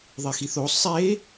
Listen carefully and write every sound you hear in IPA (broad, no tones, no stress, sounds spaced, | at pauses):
ðˤ e x i θ o sˤ e